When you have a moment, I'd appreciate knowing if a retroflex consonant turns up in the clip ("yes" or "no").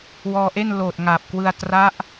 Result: no